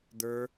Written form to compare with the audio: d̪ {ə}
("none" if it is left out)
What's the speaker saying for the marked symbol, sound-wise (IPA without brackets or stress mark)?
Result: ə˞